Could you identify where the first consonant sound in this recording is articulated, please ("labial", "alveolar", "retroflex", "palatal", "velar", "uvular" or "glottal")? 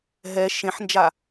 glottal